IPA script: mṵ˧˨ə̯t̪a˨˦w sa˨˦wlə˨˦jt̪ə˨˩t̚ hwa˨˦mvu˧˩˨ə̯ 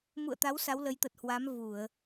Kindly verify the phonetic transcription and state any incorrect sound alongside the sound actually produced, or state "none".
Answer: none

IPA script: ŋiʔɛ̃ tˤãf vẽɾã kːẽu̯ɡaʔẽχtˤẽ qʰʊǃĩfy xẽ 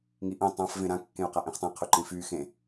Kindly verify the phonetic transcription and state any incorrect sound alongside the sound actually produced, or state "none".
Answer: ɡ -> q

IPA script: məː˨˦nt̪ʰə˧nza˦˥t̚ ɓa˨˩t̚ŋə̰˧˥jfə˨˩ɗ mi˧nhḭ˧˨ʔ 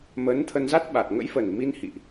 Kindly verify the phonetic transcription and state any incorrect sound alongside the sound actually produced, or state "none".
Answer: ɗ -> n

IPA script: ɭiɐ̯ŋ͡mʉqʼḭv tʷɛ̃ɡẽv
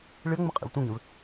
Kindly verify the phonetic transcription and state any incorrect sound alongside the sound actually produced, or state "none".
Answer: ʉ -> ɨ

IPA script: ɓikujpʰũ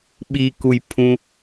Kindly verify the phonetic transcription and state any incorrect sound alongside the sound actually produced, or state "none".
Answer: none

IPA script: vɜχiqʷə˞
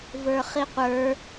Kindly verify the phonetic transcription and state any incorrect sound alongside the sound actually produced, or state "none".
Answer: ɜ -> ə˞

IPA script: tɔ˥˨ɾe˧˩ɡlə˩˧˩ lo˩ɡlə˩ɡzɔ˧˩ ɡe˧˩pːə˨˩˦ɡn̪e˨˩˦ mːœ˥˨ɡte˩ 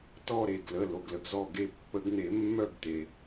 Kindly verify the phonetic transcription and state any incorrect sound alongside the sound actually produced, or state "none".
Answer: none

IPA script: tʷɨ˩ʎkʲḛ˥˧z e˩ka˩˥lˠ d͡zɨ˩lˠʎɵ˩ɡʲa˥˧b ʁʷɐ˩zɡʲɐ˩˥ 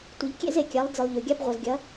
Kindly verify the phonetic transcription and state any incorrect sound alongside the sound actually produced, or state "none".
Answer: k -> kʲ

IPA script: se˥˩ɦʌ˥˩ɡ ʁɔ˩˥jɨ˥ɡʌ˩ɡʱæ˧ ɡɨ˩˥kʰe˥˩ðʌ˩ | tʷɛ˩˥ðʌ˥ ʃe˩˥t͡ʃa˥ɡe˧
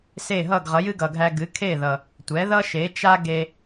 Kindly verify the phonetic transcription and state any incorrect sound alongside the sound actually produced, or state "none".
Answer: ɔ˩˥ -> ʌ˩˥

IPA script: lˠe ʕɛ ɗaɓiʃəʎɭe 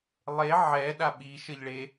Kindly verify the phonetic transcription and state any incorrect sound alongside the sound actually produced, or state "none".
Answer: none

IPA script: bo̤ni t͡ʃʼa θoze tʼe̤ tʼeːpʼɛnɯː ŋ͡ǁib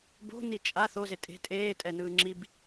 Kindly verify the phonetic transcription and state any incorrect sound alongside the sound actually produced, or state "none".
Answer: pʼ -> tʼ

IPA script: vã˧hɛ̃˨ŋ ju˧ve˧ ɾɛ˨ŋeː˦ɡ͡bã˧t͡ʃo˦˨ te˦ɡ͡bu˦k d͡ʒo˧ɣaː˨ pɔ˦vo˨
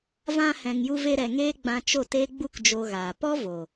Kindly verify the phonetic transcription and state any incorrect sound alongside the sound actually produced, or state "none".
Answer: none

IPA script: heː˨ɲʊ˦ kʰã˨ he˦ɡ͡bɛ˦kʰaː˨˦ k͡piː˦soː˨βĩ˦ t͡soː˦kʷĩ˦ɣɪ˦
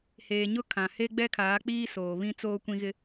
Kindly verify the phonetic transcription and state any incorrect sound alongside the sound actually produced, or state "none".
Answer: none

